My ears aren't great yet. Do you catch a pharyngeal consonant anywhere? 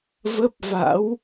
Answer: no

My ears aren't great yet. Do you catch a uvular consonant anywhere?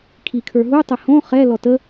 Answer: yes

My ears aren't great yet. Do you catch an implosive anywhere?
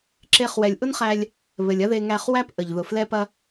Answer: no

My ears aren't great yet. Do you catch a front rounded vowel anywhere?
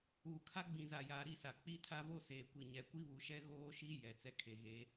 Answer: no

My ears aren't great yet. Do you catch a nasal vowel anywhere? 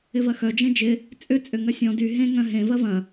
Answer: yes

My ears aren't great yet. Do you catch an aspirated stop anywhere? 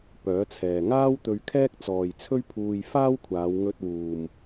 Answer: yes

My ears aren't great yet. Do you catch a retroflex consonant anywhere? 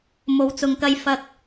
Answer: no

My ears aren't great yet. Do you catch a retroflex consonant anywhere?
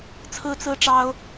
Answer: yes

